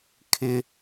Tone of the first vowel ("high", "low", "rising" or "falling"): low